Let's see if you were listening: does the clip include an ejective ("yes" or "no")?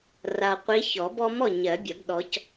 no